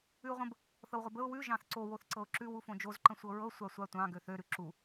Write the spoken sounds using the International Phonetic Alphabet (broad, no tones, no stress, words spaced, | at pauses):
ʉʊ̯ʁʷə̃b | θɤwʁʷəbəʊ̯ wʉ ʒɑ̃θǀo woθǀɤʊ̯ǁʉw ufõd͡ʒoz ǃə̃sʷɤɹɤ sʷasʷatʷɑ̃ ɡøθø ɾʉǁu